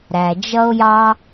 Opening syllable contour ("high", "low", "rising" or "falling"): low